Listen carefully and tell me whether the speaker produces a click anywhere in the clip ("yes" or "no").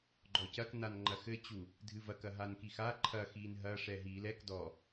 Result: yes